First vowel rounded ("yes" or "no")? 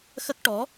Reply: no